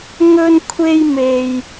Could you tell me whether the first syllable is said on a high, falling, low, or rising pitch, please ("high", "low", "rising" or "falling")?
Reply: high